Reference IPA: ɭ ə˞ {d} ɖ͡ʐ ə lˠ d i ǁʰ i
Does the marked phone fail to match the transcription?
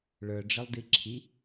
yes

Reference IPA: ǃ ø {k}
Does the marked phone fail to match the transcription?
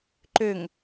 yes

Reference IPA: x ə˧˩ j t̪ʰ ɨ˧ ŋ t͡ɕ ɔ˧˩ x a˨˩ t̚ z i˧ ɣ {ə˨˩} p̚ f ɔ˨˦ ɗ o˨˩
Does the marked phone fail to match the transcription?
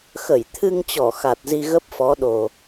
yes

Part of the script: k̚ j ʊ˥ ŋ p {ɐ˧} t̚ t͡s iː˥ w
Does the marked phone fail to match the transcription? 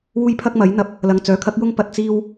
yes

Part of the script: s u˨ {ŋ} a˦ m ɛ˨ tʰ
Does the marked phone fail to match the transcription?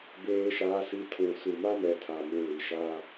yes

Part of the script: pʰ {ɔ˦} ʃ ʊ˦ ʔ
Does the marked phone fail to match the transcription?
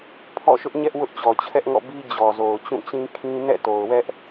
yes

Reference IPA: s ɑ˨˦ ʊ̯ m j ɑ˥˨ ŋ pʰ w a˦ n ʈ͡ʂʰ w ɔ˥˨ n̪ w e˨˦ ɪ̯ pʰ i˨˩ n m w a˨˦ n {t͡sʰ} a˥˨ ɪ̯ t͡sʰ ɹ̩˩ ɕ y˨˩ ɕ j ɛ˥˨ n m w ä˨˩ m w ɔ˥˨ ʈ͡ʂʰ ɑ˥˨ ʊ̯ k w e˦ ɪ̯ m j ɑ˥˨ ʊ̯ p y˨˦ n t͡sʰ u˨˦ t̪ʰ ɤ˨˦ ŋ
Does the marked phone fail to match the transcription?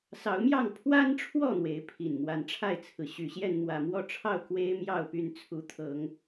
yes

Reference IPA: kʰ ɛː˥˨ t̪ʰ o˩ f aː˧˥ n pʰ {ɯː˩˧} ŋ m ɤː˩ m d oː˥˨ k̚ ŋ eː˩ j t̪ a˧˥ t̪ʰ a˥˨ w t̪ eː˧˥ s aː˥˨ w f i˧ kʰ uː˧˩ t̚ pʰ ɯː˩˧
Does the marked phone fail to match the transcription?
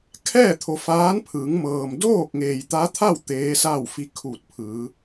no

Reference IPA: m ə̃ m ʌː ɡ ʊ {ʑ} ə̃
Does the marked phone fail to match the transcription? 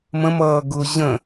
no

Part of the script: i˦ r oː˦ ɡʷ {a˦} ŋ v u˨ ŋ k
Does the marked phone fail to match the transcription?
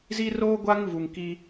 no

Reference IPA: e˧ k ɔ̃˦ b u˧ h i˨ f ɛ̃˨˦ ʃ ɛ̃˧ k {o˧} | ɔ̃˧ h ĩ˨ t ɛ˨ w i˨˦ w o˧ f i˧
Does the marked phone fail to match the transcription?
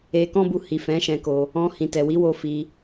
no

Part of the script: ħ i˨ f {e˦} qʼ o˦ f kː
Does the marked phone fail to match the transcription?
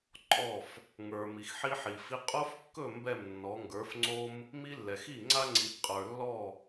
yes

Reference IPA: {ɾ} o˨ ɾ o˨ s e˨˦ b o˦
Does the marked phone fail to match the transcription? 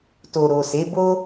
yes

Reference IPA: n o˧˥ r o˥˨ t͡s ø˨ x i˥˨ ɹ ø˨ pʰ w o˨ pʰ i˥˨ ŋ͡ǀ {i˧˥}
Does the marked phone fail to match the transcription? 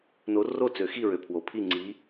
no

